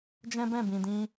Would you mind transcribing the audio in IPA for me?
d͡ʒ ɛ̃˦ b ɛ̃˦˨ b ĩ˨ d ĩ˧

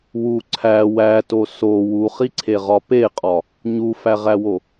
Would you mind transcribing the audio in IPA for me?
w u ǀʰ æ w æ t o s o w u χ i ǀʰ e ʁ ɒ p e qʼ ɒ | ɲ u f æ ʁ æ w o

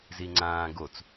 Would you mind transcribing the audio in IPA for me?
z i ŋ͡ǀ ãː ɡ o t͡s

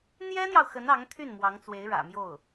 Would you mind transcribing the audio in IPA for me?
n̪ j ɛ˥ n̪ j ɑ˨ ʊ̯ x ə˧˥ n ɑ˧˥ ŋ t̪ʰ y˥˩ n m w ɑ˧˥ ŋ t͡s w e˧˥ ɪ̯ ɻ ä̰˨˩ m j o˥˩ ʊ̯

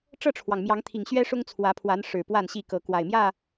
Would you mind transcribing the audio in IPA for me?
ʈ͡ʂ ɤ˥˨ ʈ͡ʂʰ w ɑ˩ ŋ m j ɑ˨˦ ŋ t̪ʰ i˨˩ ŋ ɕ ɥ ɛ˦ ʂ ʊ˦ ŋ t͡sʰ w ä˨˦ pʰ w a˨˦ n ʂ ɻ̩˨˩ p w a˥˨ n ɕ i˥˨ k ɤ˨˦ k w a˨˩ ɪ̯ m j ä˥˨

